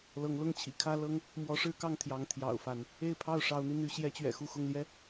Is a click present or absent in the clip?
absent